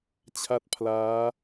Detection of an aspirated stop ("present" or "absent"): present